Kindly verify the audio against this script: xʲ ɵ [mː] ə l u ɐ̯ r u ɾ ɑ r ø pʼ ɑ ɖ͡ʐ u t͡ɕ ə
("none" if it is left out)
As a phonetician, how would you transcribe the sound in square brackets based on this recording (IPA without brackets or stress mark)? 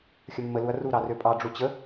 mː